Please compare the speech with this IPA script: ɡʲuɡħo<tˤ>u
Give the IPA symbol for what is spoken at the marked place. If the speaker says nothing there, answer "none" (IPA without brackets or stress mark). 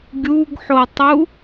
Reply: tˤ